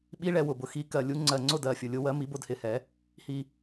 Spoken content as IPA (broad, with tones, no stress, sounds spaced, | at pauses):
ɓ i˨˥ ɭ ɛ˨˩ w ʊ˨˩ b ʊ˨˩ x i˨˥ k ɜ˨˩ lʲ u˨˥ ŋ͡ǀ ɜ˨˩ ŋ͡ǀ ʊ˥˩ d ɜ˨˩ fʲ ʊ˨˩ lʲ ʊ˨˥ w ɜ˨˥ m i˨˥ b ʊ˥˩ d h ɪ˥˩ h ɛ˨˥ | h i˨˩